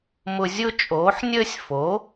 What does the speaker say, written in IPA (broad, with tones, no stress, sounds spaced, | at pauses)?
m ʊ˦ zʲ ʊ˦ t͡ʃʼ oː˨˦ ħ nʲ əː˦ sʲ f o˨˦